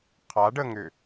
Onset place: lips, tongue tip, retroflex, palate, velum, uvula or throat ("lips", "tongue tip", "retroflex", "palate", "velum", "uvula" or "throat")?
uvula